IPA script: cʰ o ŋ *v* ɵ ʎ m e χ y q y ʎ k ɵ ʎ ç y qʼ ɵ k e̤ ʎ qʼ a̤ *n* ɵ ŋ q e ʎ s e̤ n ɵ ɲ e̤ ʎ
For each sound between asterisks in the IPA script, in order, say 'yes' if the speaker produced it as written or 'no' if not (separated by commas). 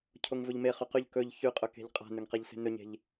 yes, yes